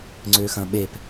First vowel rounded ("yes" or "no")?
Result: yes